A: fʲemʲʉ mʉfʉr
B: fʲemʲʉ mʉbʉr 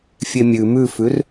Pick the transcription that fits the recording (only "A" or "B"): A